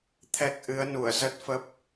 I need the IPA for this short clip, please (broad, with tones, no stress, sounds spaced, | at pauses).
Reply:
t̪ʰ ɛ˨˩ k̚ ʔ ɨ˨˦ ə̯ n u˧˩ ə̯ z ə˦˥ t̚ f ə˦˥ p̚